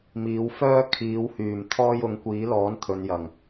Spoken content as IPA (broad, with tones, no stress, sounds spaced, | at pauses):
m iː˨˧ w f œː˥ kʰ iː˨˥ w h yː˨˩ m t̪ʰ ɔː˥ j ʊ˨˥ ŋ kʷ iː˨˥ l ɔː˨˥ n t̪ʰ ɵ˨˧ n j ɐ˨˩ ŋ